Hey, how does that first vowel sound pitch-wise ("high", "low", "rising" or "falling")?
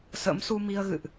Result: rising